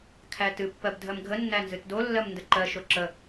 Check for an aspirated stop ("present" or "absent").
present